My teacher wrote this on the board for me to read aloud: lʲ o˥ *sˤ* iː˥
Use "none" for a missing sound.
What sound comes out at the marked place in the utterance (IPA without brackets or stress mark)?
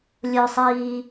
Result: sˤ